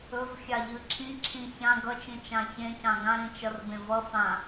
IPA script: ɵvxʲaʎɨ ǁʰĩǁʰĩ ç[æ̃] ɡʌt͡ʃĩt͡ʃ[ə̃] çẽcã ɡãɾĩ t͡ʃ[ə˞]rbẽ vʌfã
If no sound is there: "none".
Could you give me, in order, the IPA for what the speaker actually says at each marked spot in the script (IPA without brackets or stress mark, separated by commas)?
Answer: ã, ã, ʌ